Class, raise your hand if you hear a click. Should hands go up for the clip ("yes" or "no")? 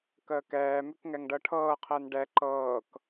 yes